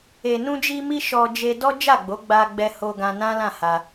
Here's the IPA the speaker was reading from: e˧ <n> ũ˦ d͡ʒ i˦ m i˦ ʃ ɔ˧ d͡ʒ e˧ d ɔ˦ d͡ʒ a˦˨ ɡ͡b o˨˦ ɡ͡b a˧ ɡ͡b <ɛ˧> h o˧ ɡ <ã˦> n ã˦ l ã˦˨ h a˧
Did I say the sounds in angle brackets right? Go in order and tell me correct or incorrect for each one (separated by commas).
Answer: correct, correct, incorrect